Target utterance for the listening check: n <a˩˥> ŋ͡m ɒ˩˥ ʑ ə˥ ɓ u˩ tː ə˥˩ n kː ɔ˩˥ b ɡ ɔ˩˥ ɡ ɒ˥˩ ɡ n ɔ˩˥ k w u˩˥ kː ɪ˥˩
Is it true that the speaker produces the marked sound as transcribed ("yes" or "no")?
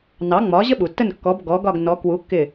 no